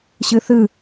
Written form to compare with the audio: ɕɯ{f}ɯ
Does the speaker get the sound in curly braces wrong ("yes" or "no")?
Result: yes